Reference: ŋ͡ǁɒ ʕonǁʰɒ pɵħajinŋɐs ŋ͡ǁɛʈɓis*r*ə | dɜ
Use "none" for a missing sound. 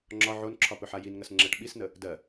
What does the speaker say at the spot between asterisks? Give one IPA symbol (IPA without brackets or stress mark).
n